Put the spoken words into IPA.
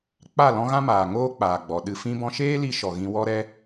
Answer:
k͡pa˦˨lɔ̃˦ɣã˦maː˨ ŋoː˦k͡paː˨ɡ͡bɔ˨ ɗɨ˧ fĩ˧bɔ̃˧ʃeː˦li˧ ʃɔ˨ɣĩ˧ wɔ˦ɾɛ˦

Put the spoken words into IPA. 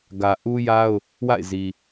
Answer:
ɡä˨ʔu˦ja˦ʊ̯ | wa̰˦˨ɪ̯zi˨

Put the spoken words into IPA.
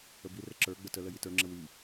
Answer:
əbirə ǁə˞ ɡ͡bətələ jitə˞ŋ͡ǁə wi

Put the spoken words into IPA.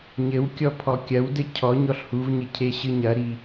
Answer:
ɲɘwkʲɔ pʰɔkʲɐwdɘ cʰɔ ɲɔɬhuvɲɘ cʰeɕɨɲɐɾi

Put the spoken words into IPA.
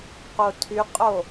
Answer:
qotʰyqʼo

